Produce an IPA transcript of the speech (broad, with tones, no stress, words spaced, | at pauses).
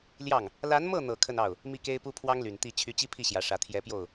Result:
ljɑ˥˩ŋ | la˧˥nmɤ˥˩n̪ɤ˨˩ kʰə˥˧nɑ˥˩ʊ̯ | mi˥˩ke˥ɪ̯pu˥ pʰwɑ˥ŋly˨˩n t̪i˥˩ t͡ɕʰy˧˥t͡ɕi˥pʰi˥˩ ɕjä˧˥ʂä˧˥ t̪ʰjɛ˧˥pjo˥˩ʊ̯